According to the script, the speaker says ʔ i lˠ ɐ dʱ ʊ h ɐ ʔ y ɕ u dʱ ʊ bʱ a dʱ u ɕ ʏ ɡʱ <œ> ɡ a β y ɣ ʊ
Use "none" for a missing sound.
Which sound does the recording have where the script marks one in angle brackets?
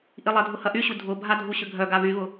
œ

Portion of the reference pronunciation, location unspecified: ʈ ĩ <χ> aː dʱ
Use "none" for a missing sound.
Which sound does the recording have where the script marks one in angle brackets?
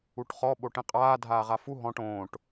qʼ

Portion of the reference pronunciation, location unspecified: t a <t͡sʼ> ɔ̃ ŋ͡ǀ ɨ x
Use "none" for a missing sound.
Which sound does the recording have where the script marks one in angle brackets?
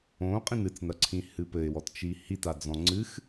d͡z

